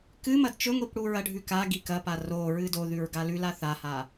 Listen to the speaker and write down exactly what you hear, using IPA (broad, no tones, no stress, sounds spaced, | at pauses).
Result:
k ɨ m ɐ d t͡ʃ ɵ ŋʷ i p ɽ u ɹ ɐ ɖʱ ʉ k a ɡ i k ɐ p a r o ɹ ɨ d o ð ʉ ɹ ɡ a l ʉ l a θ a h a